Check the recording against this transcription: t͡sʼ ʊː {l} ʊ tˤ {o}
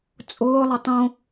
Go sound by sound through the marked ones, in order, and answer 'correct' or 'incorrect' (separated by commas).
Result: incorrect, incorrect